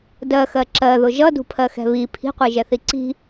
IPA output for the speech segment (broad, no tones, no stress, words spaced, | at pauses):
dɜxɜ ǁɜðʊ ʒʌdṳpʰɜxɛ̤ βi pʰi̤qʷiʒɛθi ǀi̤